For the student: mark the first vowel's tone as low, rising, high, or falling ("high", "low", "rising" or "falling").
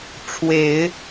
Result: low